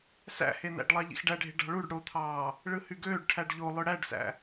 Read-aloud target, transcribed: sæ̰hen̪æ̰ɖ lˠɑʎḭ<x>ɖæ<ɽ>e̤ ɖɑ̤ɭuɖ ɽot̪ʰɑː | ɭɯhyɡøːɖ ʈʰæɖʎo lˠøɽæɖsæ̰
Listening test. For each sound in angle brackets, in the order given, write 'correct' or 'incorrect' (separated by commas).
correct, incorrect